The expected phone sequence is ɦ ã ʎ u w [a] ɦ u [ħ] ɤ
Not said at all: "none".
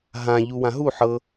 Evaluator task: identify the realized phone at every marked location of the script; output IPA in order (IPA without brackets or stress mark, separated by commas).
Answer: ã, ħ